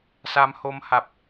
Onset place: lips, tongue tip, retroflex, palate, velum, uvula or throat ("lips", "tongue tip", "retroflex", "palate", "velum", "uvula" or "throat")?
tongue tip